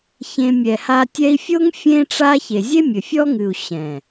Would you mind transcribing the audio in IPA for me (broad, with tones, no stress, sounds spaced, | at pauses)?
ç ẽ˧ mʲ ɛ˨ h a˧ tʲ ɛ˧ i̯ fʲ o˦ ŋ fʲ ẽ˦ ʈ͡ʂ a˦ ç e˨ zʲ e˦ mʲ ɘ˨ fʲ ɔ˦ ŋ ɨ˨ u̯ ɕ ɛ̃˨